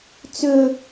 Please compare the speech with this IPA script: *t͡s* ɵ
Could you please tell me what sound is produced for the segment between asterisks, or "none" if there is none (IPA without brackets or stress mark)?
t͡s